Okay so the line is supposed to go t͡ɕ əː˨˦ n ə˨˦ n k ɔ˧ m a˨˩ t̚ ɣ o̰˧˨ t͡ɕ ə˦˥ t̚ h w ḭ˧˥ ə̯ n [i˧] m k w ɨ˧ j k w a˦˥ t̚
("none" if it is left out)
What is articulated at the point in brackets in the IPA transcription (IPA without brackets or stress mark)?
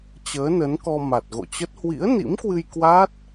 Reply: ḭ˧˥